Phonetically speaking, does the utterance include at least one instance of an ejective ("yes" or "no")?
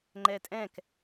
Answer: yes